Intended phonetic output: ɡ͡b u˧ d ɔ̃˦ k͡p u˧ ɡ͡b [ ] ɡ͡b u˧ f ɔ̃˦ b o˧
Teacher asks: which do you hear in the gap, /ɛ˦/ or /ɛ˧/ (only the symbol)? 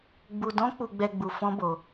ɛ˧